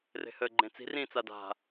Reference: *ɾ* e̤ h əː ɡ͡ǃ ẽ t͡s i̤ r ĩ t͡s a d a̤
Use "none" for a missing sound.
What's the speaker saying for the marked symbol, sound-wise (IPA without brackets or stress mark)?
r